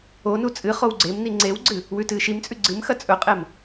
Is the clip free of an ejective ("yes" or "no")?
no